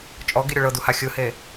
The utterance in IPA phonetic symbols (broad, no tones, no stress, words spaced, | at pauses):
t͡ʃʼɔɡi ɾʲoɭɤdu haxʲɯhe